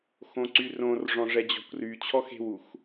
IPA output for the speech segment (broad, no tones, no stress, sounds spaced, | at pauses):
x õ ǀ y r õ r ʐ ɔ̃ ʐ ɛ d͡ʑ ɔ̤ kʷ r y t͡ɕʰ ɔ x e̤ w u x